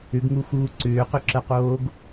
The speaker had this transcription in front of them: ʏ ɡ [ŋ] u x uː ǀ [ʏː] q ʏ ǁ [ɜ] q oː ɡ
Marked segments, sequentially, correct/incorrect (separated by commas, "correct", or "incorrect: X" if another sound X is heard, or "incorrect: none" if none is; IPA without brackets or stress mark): correct, correct, correct